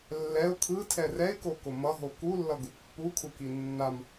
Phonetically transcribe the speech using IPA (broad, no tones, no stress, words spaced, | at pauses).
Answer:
lːɛʊ̯ kʰɯtʰɛ rɛɪ̯koko mʌɦo kulːʌɡu pːukʰuki nːam